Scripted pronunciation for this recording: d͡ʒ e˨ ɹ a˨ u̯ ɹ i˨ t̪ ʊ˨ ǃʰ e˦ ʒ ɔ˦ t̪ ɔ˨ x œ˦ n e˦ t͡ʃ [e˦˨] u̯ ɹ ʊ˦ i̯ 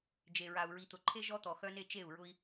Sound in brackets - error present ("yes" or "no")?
no